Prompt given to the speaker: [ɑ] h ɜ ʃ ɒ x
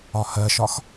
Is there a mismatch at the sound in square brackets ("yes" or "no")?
yes